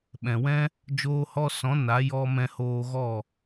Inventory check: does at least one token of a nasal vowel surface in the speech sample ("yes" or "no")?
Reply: yes